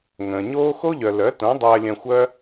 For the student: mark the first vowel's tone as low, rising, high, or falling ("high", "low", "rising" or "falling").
low